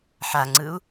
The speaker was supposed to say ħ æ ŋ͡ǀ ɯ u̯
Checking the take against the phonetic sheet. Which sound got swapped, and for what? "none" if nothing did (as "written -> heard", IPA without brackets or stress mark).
æ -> a